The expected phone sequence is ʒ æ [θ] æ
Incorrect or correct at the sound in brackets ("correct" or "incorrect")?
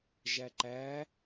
incorrect